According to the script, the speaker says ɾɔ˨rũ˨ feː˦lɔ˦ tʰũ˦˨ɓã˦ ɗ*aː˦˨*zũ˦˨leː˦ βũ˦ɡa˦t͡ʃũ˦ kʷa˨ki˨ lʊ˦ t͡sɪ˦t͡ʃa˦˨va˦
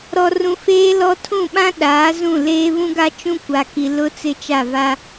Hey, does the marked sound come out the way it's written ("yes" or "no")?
no